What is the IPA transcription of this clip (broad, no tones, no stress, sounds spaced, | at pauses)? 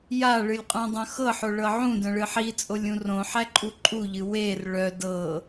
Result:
j a ɭ ɨ lʲ qʼ ũ dˤ œ̃ x ɤ ħ o ɭ ɤ ʕ ũ d œ̃ ɭ ɨ ħ i t͡sʼ o lʲ ũ r õ ħ æ ǃʼ u ǃʼ u ʎ ɨ w e r ɭ œ d ɤ